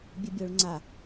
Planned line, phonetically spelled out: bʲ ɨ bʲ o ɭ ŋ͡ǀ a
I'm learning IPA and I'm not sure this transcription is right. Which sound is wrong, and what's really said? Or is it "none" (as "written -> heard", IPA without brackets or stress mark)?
none